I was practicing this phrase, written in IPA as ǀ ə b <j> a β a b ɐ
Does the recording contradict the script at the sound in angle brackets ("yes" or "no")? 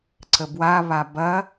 yes